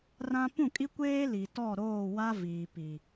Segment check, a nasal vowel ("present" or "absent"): present